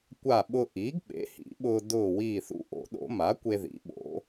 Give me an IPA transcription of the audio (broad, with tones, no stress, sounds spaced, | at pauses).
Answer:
kʷ a˧˩ ɓ ʊ˧ ʔ iː˩˥ ɡ ɓ ḛ˩˥ h ḭ˨˩˦ ɓ ʊː˧ d ʊː˧˩ w iː˧˩ θ ṵ˧ ʔ o̰˨˩˦ ɗ o̰˨˩˦ m a˩˥ kʷ e˧ ð ḭ˩˥ ɓ o̰˩˥